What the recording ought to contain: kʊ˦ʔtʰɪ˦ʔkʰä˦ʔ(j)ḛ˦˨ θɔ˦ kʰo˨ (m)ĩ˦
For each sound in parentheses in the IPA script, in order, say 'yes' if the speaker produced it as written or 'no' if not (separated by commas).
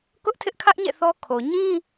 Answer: no, no